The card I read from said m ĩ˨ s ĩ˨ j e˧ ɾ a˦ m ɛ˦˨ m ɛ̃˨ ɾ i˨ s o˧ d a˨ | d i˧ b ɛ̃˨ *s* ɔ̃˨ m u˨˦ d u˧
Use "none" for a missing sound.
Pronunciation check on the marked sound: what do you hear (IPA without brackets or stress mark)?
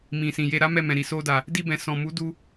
s